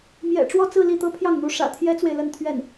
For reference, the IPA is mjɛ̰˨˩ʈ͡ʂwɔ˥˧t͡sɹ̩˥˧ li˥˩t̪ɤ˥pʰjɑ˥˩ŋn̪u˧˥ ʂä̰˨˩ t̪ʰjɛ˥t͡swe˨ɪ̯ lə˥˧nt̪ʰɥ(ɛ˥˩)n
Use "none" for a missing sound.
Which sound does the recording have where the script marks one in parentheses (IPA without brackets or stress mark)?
ɛ˥˩